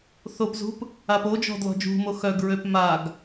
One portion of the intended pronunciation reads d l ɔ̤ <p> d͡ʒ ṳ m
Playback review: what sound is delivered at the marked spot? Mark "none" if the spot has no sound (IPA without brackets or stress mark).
none